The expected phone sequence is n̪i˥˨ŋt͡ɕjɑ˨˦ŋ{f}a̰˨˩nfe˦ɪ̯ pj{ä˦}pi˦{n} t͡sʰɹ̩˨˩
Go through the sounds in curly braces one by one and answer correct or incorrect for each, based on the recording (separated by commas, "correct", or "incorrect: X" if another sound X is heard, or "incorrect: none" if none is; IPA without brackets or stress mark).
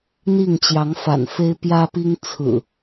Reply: correct, correct, incorrect: ŋ